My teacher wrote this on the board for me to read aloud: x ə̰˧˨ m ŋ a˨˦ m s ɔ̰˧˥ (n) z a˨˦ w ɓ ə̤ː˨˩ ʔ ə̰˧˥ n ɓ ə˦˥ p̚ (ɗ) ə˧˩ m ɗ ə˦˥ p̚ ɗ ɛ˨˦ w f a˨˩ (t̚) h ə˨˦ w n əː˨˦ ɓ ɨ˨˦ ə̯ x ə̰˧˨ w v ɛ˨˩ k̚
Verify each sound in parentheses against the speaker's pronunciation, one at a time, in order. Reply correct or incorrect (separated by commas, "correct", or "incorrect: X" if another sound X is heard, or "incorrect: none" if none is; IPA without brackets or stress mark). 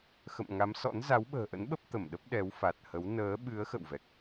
correct, incorrect: t̪, correct